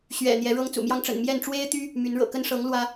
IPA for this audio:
ɕ ɥ ɛ̰˨˩ n̪ j ɛ˨˦ ɻ ɤ˦ ŋ t͡s ṵ˨˩ m j ɑ˦ ŋ ʈ͡ʂ ə̰˨˩ n m j ɛ˥˨ n ʈ͡ʂ w e˦ ɪ̯ t̪ y˦ | m y˨˦ n ɻ ɤ̰˨˩ k ə˦ n ʂ ɤ˨˦ ŋ l w ä˦

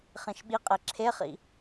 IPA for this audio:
χ ĩ ʃ ɓ i qʼ e ǁʰ e χ ḭ

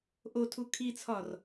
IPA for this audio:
ʔ o tʰ u kʰ i t͡sʰ ɒ r

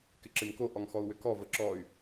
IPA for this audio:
k ɪ ǁ ɪ m k o ʔ ɔ ŋ x ɔ u̯ w ʏ k ɔ v ə ǁ ɔ y̯

